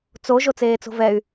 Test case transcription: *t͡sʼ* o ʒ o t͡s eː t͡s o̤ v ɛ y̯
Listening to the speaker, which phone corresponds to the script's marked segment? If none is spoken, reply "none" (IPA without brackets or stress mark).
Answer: t͡s